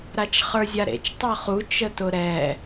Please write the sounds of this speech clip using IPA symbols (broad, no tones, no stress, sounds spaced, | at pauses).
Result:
ɾ a t͡ʃ χ ə˞ zʲ a ɾ ḛ t͡ʃ tˤ ɤ χ u t͡ʃ ə t ʊ ɾ ɛ